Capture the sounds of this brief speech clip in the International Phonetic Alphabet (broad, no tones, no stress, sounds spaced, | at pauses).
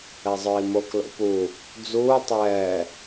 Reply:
ɛ zˤ ə˞ i̯ m o k l o̰ p u | d͡z uː tˤ ɛː